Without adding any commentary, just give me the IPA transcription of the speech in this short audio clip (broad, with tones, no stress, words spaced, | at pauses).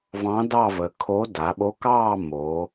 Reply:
vɑ̃˧˥dɑ˥˧və˩˧ kʰo˧˥ da˩˧ɓo˧˥kɑː˥˧ mo˩˧